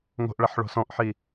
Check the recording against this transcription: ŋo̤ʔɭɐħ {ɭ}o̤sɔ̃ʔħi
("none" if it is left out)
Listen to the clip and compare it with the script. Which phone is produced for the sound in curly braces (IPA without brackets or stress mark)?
ɭ